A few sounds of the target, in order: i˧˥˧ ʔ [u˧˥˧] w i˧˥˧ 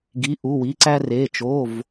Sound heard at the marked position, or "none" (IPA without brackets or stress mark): u˧˥˧